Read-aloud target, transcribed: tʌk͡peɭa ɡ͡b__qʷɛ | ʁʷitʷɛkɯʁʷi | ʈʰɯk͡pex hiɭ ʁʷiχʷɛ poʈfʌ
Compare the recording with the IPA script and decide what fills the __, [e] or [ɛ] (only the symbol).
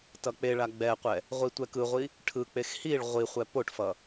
ɛ